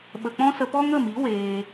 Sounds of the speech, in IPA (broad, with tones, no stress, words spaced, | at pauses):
ɓə˧k͡pɔ̃˦ sə˧pɔ˦ ŋə˦˨mi˨˦ weː˧